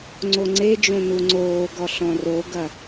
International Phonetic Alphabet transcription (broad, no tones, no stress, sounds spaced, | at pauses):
ŋ͡ǀ o ŋ͡ǀ e d͡ʒ õ n u ŋ͡ǀ oː ɡ ɔ ɬ ɔ̃ r o ɡ ɐ